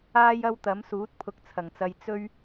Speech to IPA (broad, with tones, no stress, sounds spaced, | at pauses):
aː˥ j ɐ˥ w t̪ ɐ˨˥ m s uː˨˥ t̚ pʰ ʊ˧ k̚ t͡sʰ ɐ˨˩ ŋ t͡s ɐ˧ j t͡s ɵ˥ ɥ